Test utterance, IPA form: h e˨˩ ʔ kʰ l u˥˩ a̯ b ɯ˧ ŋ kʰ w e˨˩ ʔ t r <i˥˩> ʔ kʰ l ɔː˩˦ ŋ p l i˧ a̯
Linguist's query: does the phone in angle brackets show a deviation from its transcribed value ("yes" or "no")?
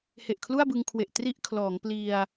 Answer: no